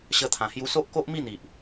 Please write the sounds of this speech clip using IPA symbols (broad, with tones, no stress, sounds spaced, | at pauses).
ɕ ə˧ t̪ʰ ã˨˩ h j u˧ s o˦ ʔ k o˦ ʔ m i˥˧ n̪ i˨ ʔ